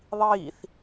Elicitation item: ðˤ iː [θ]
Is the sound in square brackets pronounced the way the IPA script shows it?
yes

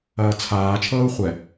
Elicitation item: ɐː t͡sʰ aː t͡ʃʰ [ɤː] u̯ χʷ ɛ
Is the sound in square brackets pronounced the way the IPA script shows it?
yes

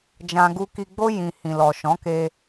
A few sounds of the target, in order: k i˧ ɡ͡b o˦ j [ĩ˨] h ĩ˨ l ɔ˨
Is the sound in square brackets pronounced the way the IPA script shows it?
no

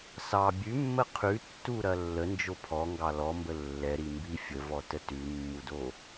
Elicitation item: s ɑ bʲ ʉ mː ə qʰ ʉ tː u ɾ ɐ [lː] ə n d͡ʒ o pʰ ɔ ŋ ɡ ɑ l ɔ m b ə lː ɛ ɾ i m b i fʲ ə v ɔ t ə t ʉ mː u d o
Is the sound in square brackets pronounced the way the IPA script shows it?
yes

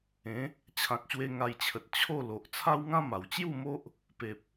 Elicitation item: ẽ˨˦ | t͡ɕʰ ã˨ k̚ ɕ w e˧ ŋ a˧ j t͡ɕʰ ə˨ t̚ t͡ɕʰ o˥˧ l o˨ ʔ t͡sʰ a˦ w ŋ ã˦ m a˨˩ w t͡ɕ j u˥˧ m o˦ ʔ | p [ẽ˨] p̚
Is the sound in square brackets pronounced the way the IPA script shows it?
no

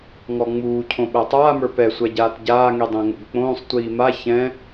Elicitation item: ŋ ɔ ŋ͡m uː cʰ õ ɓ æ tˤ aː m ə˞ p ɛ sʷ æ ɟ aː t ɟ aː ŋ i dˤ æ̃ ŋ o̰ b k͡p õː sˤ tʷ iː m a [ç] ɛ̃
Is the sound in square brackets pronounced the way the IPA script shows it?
yes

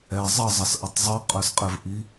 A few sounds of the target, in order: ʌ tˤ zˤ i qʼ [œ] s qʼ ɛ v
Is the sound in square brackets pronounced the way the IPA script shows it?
yes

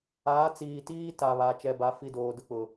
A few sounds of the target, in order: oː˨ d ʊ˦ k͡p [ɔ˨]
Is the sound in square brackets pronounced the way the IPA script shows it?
no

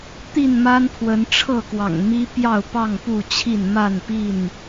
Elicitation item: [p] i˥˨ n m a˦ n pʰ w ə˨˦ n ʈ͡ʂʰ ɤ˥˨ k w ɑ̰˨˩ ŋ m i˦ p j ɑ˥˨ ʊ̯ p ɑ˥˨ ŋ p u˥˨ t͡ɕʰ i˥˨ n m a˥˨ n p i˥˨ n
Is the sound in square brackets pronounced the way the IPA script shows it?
no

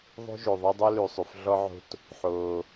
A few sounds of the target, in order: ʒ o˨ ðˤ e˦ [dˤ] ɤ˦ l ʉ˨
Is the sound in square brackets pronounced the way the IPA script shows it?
yes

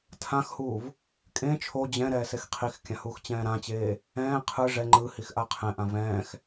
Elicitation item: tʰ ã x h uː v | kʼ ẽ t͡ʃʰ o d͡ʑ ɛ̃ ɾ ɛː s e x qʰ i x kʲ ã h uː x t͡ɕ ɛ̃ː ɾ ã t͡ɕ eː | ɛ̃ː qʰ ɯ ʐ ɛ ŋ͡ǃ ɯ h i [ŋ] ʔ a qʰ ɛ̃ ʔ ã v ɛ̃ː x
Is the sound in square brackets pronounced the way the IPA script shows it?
no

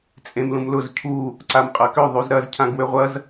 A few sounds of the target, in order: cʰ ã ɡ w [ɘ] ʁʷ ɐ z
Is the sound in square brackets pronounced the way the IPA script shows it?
no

